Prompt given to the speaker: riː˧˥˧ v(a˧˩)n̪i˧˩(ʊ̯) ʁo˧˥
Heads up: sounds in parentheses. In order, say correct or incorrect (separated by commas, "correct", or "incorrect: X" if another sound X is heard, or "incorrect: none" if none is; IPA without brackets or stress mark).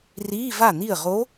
correct, incorrect: ə̯